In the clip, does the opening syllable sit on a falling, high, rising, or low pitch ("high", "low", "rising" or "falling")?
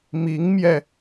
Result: rising